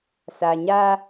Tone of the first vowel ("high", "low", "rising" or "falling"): low